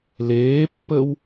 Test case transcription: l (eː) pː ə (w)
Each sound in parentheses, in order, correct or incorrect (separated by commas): correct, correct